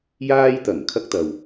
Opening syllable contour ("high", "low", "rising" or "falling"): high